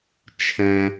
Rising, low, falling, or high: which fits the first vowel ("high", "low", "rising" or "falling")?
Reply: low